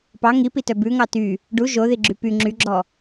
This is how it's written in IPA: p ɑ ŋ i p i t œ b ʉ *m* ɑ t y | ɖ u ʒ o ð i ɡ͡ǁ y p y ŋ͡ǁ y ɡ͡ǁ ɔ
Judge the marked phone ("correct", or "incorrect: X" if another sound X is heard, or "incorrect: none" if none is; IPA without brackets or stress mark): incorrect: ŋ